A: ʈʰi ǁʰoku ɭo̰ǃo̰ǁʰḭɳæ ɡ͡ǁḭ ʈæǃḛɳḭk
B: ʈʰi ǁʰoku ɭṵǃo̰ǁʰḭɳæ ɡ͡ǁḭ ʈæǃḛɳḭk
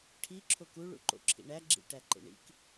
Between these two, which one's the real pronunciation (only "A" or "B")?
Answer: B